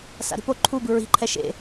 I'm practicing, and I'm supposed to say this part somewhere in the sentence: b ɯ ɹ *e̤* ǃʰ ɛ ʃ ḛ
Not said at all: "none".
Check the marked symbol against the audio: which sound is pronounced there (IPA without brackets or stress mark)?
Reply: i̤